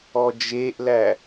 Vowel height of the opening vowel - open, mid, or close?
mid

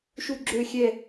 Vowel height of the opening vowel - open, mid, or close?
close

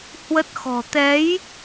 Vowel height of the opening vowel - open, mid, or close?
mid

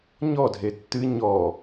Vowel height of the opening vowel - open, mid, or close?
mid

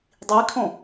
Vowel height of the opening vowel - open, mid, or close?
close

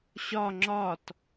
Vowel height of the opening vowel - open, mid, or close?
open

